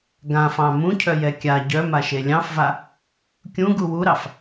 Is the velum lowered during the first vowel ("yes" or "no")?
yes